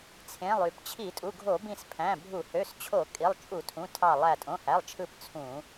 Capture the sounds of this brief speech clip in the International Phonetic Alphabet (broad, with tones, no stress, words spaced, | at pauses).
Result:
t͡sʰẽ˩˧˩lˠy˧˩˧p t͡ɕʰi˧˩˧tʼu˩˧˩ɡʱo˧˩˧ bĩ˧˩spʰæ̃˩˧˩bʱu˧˩˧ hø˩˧˩st͡ɕʰo˧˩˧ kʼi˩˧˩lˠt͡ʃʼu˧˩˧tʰũ˩˧˩ tʰɑ˧˩lˠæ˧˩ tʼõ˩˧˩hæ˩˧˩lˠt͡ʃʰɯ˧˩p t͡sʰũ˧˩˧